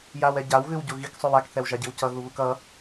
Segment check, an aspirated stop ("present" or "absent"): absent